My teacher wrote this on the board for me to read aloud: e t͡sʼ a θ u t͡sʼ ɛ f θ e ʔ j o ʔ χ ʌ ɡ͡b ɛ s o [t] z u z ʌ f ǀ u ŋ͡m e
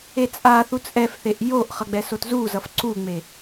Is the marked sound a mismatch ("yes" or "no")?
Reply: no